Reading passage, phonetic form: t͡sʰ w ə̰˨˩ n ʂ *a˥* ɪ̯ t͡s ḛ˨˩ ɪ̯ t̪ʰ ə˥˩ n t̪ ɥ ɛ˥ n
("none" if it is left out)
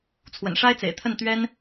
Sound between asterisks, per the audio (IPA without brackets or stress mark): a˥